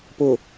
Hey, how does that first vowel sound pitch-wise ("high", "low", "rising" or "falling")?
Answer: low